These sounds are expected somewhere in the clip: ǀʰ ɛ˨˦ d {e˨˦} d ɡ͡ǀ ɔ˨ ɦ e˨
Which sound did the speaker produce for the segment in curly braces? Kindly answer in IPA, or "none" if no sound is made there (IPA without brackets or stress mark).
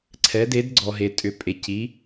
e˨˦